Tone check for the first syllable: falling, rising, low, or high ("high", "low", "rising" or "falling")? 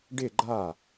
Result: falling